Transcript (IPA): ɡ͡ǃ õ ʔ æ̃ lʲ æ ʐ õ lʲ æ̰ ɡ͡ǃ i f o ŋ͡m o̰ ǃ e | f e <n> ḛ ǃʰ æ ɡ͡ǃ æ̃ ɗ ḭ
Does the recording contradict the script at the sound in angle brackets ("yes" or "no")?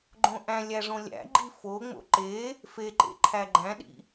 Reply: yes